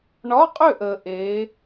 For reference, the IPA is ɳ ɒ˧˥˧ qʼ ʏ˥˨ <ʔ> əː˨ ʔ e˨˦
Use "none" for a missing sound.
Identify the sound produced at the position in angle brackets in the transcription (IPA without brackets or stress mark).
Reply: ʔ